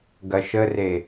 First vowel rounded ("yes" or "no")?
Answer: no